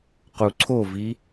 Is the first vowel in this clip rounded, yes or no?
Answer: yes